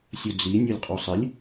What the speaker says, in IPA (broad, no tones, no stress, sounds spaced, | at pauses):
sʲ u d͡z i nʲ u lʲ qʼ u sˤ ɪ lʲ